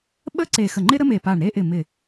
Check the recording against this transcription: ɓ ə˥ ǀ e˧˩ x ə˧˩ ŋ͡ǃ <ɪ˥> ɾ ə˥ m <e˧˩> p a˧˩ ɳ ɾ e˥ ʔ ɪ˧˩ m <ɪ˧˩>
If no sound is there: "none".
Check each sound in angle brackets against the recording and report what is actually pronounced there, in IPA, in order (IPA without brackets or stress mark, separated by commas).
ɪ˥, e˧˩, ɪ˧˩